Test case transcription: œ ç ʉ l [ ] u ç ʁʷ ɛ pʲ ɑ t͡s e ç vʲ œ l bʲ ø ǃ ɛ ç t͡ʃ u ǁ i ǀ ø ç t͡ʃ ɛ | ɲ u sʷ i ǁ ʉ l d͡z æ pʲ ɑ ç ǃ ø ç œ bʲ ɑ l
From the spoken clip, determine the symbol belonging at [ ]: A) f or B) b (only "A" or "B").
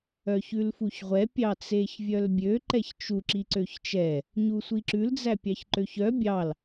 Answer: A